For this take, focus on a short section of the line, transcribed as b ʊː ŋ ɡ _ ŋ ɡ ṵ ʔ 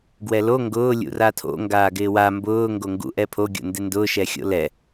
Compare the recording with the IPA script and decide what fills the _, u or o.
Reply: o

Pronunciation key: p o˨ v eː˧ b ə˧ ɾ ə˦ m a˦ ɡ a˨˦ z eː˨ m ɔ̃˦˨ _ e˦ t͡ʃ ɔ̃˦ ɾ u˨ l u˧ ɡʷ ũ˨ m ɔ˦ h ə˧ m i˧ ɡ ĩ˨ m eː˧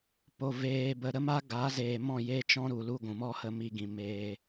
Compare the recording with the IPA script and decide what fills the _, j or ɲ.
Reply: j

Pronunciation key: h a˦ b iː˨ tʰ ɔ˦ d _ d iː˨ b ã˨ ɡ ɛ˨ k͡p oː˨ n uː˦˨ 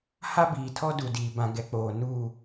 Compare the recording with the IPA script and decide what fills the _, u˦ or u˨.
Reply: u˨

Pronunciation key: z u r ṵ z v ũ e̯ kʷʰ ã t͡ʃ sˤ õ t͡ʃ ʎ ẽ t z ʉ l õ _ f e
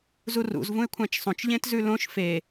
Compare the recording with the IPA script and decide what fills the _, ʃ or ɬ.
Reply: ʃ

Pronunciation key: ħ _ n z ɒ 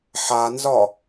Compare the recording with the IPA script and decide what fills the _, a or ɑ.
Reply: a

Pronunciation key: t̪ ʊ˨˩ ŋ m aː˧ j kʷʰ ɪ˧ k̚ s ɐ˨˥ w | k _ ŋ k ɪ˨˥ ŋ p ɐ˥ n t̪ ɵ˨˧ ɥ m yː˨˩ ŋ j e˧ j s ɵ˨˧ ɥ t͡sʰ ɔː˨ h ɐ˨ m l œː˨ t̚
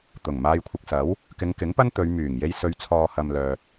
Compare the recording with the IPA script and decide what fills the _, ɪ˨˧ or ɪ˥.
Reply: ɪ˨˧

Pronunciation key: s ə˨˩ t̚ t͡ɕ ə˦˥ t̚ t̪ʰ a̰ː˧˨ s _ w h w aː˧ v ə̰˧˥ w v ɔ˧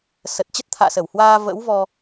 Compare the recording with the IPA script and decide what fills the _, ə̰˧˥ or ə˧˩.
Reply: ə˧˩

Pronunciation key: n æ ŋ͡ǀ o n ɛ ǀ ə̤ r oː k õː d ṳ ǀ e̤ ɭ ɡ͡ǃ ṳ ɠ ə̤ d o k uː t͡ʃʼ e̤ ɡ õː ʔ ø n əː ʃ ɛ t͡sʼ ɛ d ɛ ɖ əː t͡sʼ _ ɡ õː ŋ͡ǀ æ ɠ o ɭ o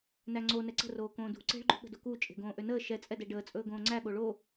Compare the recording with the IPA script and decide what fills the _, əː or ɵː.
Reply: ɵː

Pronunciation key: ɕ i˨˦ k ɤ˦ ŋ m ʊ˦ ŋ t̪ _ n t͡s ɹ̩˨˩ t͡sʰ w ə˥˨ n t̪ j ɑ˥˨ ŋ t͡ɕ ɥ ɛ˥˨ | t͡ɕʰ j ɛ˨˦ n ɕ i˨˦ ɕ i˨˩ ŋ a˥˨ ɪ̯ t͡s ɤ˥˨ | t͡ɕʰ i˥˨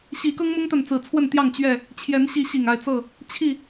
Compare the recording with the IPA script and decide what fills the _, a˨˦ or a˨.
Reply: a˨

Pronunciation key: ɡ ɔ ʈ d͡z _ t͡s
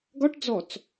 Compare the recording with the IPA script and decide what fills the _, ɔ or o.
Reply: ɔ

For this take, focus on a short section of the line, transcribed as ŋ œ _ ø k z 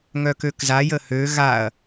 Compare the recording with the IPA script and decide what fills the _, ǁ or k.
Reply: k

